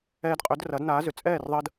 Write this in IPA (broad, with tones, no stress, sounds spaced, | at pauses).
ɛː˧ d qʼ ø˩˥ d r ɐ˩˥ d n aː˩˥ z ʏ˩ t͡sʼ ɛː˥˩ r ðˤ əː˧ d